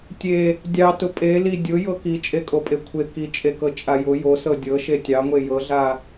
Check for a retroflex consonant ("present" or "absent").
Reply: absent